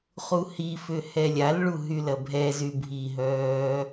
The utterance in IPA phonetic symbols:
χ u h i f ʏ h ɛ lʲ a l ɭ u ɦ y l ɐ bʱ ɛ z y bʱ i ɦ œː

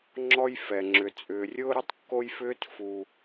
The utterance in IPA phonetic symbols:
ŋ͡ǁ ɔ˥ j f ɛ˩ ŋ͡ǁ ʏ˩ t͡sʼ ʏː˩ rʲ ʊː˥ ɾ ʊ˥ tˤ kː o˥ j f ʏː˥ t f u˩

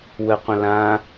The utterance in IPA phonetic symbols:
w ə qʷ ə̃ l ã

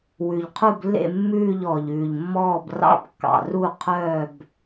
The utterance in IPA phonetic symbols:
w ʉ˩ ʎ qʰ u˧˩ b lː ḛ˧˩ mː ʉː˧˩ ʎ ɔː˩ ʎ ʉː˩ ʎ mː ɔː˧˩ b r ɑ̰˧˩ b kː ɑ̰˩ r u˧˩ qʰ œː˧˩ b

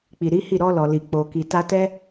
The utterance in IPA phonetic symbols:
k͡p i˨ ɾ i˨˦ h i˦˨ ɾ ɔ˧ l ɔ˨ l i˨ k͡p o˨ k i˨ t a˧ t ɛ˦

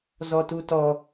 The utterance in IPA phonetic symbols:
z ɔ t u t ɔ

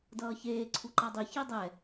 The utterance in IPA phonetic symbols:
d ʌː ç eː ǀʰ u ǃ a dˤ i ç i dˤ ɛ

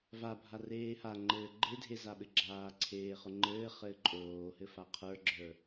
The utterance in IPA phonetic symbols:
v a bʱ a r eː h a ŋ͡ǃ ɘː ɡ͡ǃ e dʱ e z a ɓ ɘ ɡ͡ǁ aː ǀʰ eː χ ʊ ŋ͡ǃ ɘː χ ɘː ǃʼ oː h ɘ f a qʰ ə˞ ɡ͡ǁ ə˞

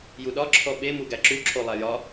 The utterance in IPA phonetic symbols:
j u ɗ ɒ ǁʰ ɔ ɓ e m u ɡ æ ǁ u ǁʰ o lˠ æ j ɒ

